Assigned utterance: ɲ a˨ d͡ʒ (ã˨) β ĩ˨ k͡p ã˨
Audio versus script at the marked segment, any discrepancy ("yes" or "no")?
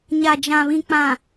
no